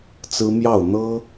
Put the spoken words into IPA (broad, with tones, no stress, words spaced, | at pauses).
t͡sɹ̩˦mjɑ˥˨ʊ̯ n̪ɤ˦